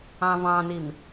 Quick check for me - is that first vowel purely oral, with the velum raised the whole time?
no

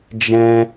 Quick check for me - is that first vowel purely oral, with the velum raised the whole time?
no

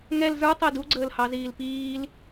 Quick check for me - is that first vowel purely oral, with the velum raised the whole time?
yes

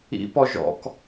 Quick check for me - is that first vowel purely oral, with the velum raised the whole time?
yes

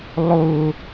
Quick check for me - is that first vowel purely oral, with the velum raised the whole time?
yes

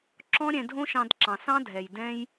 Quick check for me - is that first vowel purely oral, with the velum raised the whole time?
no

